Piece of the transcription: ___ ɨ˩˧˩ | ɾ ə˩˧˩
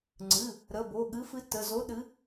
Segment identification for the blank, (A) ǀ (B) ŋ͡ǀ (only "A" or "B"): B